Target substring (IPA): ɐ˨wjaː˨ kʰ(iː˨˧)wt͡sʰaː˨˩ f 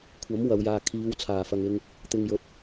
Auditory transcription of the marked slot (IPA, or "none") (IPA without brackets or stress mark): iː˨˧